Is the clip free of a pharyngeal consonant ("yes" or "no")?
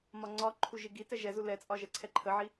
no